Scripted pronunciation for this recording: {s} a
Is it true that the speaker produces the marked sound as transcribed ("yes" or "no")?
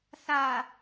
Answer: yes